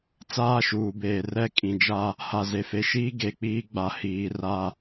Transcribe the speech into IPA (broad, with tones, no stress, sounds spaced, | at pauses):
t͡s aː˦ ʃ uː˨ b eː˨ r ɛ˦˨ kʼ ĩ˨ d͡ʒ a˦ | h a˨ z e˨ f e˨ ʃ iː˦ ɡ e˨ k͡p iː˦ ɡ͡b a˨ h iː˨ r a˨